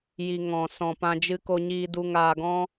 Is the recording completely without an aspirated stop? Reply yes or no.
yes